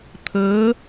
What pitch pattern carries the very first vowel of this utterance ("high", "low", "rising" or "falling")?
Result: rising